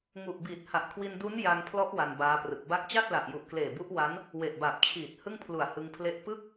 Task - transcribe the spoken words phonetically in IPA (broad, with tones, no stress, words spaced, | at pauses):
ŋu˨˩ʔbiː˨˩t̚ ha˨˩ʔkʰwi˧ndu˦˥n ja˧ŋpʰlɔ˦˥ʔ wa˧nbaː˦˥prɯ˨˩k̚ ba˦˥k̚ t͡ɕa˥˩t̚la˨˩ʔju˨˩ʔ kleː˨˩bu˦˥ʔwa˦˥n | we˨˩ʔbaː˨˩p̚t͡ɕʰiː˨˩t̚ hɯ˥˩ŋpʰlu˨˩a̯ hɯ˧ŋpʰle˥˩ʔ pɯ˥˩k̚